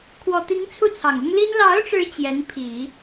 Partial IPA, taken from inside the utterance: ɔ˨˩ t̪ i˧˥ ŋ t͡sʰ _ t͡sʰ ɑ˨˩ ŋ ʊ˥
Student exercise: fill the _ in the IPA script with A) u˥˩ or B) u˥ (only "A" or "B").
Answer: A